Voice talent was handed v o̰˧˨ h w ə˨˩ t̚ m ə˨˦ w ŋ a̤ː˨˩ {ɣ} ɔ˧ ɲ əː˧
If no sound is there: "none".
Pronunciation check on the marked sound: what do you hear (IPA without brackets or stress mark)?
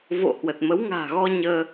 ɣ